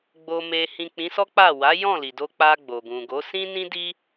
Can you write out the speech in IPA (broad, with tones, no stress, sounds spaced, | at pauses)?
ɡ͡b o˧ m e˧ h ĩ˨ k͡p ĩ˨˦ s ɔ˦ k͡p a˦˨ w a˨˦ j ɔ̃˦˨ l i˨ d o˧ k͡p a˧ ɡ͡b o˨ ɡ ũ˨ ɡ o˨˦ s ĩ˦ n ĩ˦ d i˦